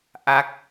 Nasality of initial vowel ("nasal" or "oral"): oral